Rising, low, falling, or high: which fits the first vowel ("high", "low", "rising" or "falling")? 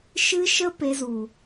high